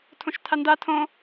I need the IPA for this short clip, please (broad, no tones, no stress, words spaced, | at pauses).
tʰõʃtʰanda tʰõ